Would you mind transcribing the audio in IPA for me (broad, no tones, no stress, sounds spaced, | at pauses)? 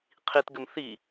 qʰ i t ɡ ɘ m θ i